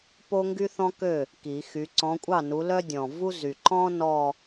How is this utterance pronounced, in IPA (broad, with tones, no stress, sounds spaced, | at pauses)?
p o˥ ŋ ɡ y˥ θ ɔ̃˥ k ø˥˩ | k i˨˩˦ x y˨˦ ǀ ɔ̃˨˦ kʷʼ ɑ˥˩ n u˨˦ l œ˥ dʲ ɔ̃˨˩ v u˥ z y˨˩ ǃ ɔ̃˥ n ɔ˥˧